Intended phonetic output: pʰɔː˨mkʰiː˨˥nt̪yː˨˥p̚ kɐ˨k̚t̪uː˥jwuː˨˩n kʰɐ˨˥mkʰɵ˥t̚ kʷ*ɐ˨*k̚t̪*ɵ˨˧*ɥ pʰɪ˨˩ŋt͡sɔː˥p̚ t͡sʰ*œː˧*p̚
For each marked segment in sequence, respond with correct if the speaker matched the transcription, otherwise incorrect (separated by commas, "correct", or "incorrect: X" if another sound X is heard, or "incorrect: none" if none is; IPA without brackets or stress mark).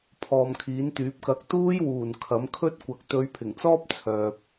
incorrect: ɐ˨˥, correct, incorrect: œː˨